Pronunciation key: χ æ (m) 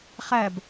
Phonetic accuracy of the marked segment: incorrect: b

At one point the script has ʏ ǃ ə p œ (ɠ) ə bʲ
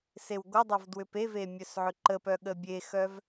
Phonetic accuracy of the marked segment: correct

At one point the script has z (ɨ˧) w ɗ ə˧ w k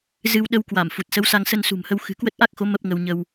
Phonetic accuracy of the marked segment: correct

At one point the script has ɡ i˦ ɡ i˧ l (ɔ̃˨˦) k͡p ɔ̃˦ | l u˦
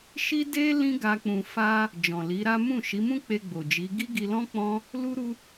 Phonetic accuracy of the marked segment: incorrect: ɔ̃˦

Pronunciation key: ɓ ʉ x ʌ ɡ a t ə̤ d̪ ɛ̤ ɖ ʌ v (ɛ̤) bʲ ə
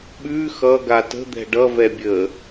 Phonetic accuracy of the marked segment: incorrect: ɛ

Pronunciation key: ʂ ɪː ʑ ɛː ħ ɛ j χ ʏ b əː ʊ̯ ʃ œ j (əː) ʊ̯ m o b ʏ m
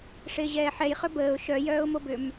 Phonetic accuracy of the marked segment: incorrect: œː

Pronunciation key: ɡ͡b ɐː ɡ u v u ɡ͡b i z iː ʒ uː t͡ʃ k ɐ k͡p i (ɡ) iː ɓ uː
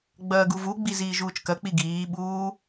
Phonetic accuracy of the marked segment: correct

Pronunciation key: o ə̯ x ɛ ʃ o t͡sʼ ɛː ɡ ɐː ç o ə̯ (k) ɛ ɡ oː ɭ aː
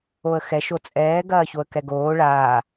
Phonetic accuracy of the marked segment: correct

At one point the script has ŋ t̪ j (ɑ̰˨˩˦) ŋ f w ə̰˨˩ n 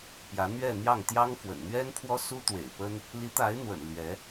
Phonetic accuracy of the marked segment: incorrect: ɑ˥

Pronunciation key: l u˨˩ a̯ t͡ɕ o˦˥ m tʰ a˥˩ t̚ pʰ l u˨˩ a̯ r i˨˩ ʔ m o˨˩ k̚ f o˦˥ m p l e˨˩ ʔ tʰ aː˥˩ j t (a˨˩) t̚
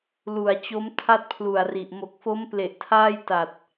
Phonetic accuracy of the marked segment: correct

